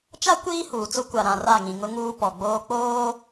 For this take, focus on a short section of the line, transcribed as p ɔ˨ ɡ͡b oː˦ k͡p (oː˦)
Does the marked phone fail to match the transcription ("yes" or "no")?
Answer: no